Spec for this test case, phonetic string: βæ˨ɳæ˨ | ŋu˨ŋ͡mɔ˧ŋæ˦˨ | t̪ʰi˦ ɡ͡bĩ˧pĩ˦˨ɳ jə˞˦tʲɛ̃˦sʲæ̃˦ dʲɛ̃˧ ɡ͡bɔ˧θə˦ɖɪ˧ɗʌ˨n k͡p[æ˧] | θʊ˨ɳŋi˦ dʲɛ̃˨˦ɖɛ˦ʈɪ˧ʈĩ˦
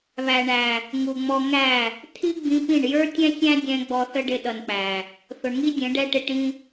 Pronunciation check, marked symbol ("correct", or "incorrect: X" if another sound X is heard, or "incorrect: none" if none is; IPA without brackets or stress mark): incorrect: æ˨